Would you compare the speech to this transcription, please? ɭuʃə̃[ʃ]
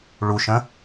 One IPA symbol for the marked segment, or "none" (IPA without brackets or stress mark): none